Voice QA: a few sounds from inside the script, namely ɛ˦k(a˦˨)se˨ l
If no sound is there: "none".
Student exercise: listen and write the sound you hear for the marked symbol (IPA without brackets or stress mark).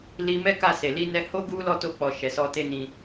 a˦˨